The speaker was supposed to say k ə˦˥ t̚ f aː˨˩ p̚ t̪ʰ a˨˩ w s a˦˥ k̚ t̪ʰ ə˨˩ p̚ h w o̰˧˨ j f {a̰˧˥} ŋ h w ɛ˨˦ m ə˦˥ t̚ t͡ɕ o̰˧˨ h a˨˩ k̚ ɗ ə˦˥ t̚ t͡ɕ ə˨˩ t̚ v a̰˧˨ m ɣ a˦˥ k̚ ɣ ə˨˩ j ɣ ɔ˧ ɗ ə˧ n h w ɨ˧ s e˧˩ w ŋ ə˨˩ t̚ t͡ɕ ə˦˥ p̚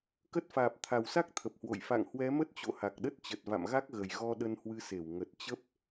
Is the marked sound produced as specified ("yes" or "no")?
no